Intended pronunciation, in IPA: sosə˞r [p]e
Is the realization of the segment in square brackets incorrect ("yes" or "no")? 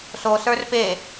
no